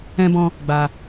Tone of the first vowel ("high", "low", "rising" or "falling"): high